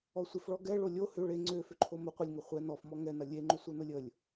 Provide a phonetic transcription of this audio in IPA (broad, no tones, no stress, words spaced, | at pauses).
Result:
ɔsʷɪfɭɔ ɡɛ ɭolʲo hʏ ɭe ŋ͡ǀøfʏǃʰo mə qʷɪlʲŋɐ χʷɛ nɔfmɔ ŋɛnɐ lʲeŋ͡ǃʏ sʷœnʊlʲəlʲ